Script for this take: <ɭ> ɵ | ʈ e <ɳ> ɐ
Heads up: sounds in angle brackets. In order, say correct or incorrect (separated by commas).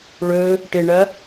correct, correct